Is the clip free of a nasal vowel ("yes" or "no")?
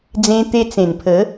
no